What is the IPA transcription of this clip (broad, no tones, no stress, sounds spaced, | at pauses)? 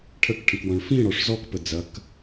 ʈʰ ə k ʈʰ ə̃ k w ɔ̃ ɭ f ĩ ɽ ɔ ʂ z ɔ k p ə d͡z ɐ k